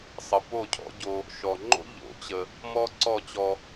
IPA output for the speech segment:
sˤ ə˨ p o˦˨ cʰ ɔ̰˦ ɟ o˦ | ʃ ɔ˨ ŋ͡ǃ o̰˦ ʎ o̰˨˦ t͡ɕ ə˦ | m ɔ˦ ǀ ɔ˦˨ t͡ɕ ɔ˦

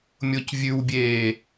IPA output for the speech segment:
mʲ o c vʲ ʉ w bʲ eː

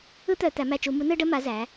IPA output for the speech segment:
ɯ˥ t̪ œ˧˩˧ t̪ æ˩˧ m æ˧˩ t͡ʃ u˧˩˧ m u˨˥ n ɯ˥ ɖ ə˥ m a˨˥ z æ˩˧

